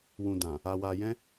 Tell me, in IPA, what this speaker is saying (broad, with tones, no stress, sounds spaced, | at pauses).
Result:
w ũ˨ d ã˨ | a˨ w a˨ j ɛ̃˧